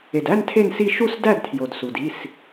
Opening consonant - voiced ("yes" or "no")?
yes